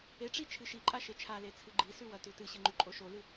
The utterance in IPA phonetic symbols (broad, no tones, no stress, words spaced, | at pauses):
eʈ͡ʂi t͡ʃʰɨʃiǃʼa ʃet͡ʃʰale t͡sʰɨɡ͡ǃisʉ wɐtʉtɨɕɨ ŋ͡ǃʉǃʼoʃolɨ